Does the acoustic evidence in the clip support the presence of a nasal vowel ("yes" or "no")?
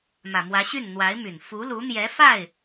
no